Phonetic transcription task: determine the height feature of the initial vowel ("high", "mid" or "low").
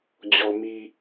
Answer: mid